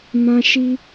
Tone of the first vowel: high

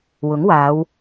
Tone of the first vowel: rising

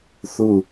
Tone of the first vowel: falling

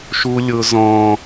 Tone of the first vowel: high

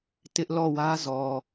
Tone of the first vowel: high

